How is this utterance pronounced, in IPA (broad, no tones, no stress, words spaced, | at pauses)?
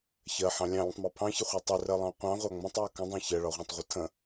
çɜħɑ̃ lʲɑ̃lʲə̃tˤmɑ pʰɑ̃çɪχʷæ tˤɪrɜlˠɑ̃ qʷɑ̃ʁʷɑ ŋ͡mə̃tˤjɒ kə̃dˤɑ̃ çɜɭɒʁʷɑ̃tˤʁʷʌ tʰə̃